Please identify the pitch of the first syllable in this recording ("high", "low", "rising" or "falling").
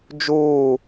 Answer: falling